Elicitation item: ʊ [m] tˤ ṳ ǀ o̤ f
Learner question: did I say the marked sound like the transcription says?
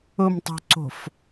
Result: yes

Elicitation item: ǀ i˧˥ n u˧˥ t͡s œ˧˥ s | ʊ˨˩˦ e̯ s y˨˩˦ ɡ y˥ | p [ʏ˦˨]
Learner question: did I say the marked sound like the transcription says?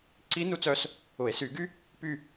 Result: no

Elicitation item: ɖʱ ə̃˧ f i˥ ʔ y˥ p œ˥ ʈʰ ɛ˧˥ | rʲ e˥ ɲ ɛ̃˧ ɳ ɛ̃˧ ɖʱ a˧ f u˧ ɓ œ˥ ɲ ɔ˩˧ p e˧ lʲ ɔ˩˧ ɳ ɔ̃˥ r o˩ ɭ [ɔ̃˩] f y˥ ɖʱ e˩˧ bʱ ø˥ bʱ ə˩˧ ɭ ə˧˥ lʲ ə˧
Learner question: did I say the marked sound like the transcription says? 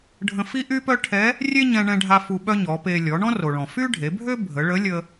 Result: yes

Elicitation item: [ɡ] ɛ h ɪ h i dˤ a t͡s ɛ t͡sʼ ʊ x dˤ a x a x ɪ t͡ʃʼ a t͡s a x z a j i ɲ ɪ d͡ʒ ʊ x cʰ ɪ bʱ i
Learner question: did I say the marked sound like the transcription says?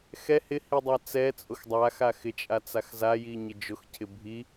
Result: no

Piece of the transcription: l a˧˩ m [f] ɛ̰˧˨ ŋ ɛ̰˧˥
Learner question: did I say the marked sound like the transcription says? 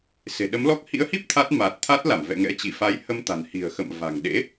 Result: no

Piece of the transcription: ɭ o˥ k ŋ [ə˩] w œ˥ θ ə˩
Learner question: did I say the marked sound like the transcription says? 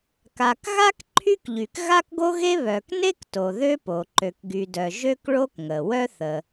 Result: yes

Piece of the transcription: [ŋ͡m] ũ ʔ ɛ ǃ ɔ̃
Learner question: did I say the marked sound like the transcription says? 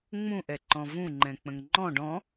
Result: yes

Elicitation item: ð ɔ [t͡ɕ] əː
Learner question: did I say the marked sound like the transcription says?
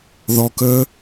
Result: no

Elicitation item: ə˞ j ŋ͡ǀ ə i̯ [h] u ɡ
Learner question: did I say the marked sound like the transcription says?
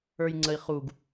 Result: no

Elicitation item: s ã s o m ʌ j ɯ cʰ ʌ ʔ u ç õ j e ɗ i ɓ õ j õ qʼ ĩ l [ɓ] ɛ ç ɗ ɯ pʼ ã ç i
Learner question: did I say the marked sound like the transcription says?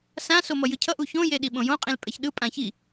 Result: no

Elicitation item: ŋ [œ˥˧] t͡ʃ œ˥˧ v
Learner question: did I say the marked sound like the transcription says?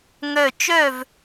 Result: yes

